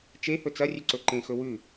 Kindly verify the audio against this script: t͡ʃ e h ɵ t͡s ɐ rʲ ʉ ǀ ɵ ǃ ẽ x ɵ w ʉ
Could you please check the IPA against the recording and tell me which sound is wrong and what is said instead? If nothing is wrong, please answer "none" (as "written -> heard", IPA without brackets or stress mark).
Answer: none